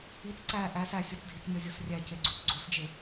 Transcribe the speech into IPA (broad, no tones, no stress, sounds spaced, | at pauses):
i t͡s ǀ æ ʔ æ s æ sʲ ɒ t͡s dʱ i t͡s nʲ ɒ zʲ o s rʲ æ c e ɡ͡ǀ u t͡s ɡ͡ǀ o s d͡ʒ e